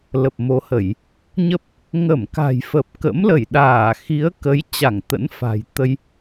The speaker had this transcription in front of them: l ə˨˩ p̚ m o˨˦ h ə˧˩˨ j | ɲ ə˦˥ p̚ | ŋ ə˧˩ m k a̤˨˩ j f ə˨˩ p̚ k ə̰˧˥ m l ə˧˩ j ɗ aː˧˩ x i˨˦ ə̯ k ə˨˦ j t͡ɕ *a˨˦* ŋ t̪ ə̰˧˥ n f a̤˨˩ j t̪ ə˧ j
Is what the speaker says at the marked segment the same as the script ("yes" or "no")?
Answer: no